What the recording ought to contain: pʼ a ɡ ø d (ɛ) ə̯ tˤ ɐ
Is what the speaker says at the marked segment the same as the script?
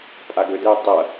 yes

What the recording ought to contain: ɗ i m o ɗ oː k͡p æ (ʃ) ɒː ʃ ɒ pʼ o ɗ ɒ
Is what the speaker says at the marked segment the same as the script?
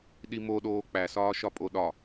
no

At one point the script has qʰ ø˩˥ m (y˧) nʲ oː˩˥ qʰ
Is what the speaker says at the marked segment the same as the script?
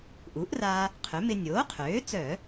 no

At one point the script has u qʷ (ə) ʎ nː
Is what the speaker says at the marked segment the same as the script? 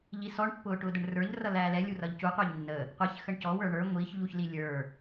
no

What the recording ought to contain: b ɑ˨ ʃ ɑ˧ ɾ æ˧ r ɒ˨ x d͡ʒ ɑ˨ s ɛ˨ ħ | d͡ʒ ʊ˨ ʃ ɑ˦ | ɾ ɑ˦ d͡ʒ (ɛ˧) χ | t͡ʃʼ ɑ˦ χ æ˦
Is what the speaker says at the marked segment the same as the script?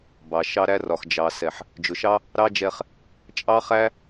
yes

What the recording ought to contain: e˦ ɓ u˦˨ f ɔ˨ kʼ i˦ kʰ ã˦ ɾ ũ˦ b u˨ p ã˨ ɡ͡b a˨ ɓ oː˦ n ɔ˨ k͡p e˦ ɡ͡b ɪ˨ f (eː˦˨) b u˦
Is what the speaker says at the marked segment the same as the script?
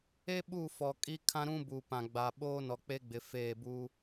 yes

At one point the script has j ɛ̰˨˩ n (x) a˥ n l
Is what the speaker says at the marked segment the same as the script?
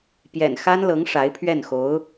yes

